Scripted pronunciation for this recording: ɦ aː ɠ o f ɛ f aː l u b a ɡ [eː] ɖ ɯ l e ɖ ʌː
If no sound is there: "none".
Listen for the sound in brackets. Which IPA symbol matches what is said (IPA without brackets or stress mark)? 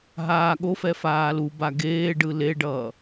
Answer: eː